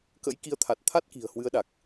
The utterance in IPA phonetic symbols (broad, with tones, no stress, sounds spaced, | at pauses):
k ə̰˧˥ j k i˨˦ ə̯ t̪ʰ a˨˩ t̚ t̪ʰ a˦˥ t̚ k i̤˨˩ ə̯ h w ɨ˨˦ ə̯ ɗ a˨˩ k̚